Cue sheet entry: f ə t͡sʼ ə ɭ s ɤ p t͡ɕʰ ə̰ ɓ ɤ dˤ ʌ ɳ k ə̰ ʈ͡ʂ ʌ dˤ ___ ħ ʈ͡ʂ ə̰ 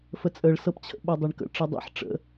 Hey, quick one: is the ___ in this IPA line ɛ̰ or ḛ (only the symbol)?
ḛ